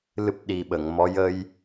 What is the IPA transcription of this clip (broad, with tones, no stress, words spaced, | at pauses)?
lɨ˦˥p̚ɗi˨˩ɓə˨˩˨ŋmɔ˧˥ jə˧j